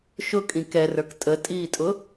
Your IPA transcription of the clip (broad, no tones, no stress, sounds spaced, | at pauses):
ʃ ʊ kʼ ĩ k ɛ r ə˞ k tʼ ə tʼ iː tʼ ʊ